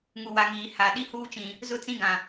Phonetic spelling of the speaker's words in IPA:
ŋ u˨ w a˨ ŋ iː˨ h a˨ ɗ i˦ h uː˦ t͡ʃ ĩ˨ | z ʊ˦ t͡s ĩ˦ ɡ ã˨

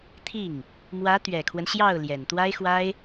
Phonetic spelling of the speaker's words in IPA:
t̪ʰ i˥˩ ŋ | m w ä˧˥ t̪ ɥ ɛ˨˩ kʰ w ə˦ n ɕ j ɑ˥˩ ʊ̯ l j ɛ˨˩ n t̪ w a˥ ɪ̯ x w a˥ ɪ̯

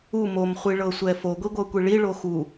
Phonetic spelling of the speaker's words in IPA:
u m o m χʷ i ɭ ɤ sʷ ɛ f o ɡʷ i ɡʷ ɤ kʷ i ɭ i ɭ o x u

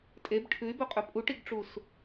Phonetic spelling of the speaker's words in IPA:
tʼ e b ʈʰ ʉ y̯ b ɵ qʼ ɵ pʼ u ʈ i ɡ ʈ͡ʂ u s

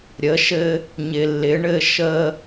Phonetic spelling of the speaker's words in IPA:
ɾʲ ə˩˧ ʃ ɘ˧ | ɲ ɪ˩ lː ɪ˩˧ ɳ ɘ˧ ʃ ə˧

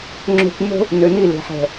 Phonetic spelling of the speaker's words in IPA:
ŋ͡ǁ o̤˨ kʷ n o̤˦ | n ø˨ n i˦˨ l e̤˨ ħ ɛ̤˨

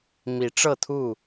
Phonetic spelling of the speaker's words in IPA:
m i˨˦ ʈ͡ʂ ɤ˥˨ t̪ʰ u˥˨

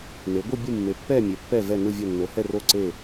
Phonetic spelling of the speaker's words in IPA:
n e˩˧ ɡʷ ɯ˦˨ bʲ ɯ˦˨ mː e˩˧ pː ɛ˦˨ mʲ e˩˧ pː ɛ˦˨ v ɛ˦˨ n ɯ˦˨ vʲ o˦˨ nː o˩˧ h ɛ˦˨ r o˦˨ ǀ e˦˨

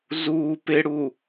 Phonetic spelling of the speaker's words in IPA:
z uː p ɪ ɽ u

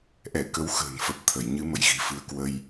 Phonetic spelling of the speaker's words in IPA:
ʔ ɛ˧˩ k ə˨˦ w x ə̤ː˨˩ n f ə˨˩ p̚ t̪ʰ ə˧˩ j ɲ ɨ˨˦ m ə̰˧˨ j ɣ i̤˨˩ f ɨ˧ ə̯ k w ə˧ j

